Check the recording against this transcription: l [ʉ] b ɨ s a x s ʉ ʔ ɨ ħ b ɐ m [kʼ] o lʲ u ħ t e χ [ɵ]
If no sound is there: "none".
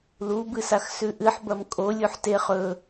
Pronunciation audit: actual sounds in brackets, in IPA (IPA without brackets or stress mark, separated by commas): u, kʼ, ɵ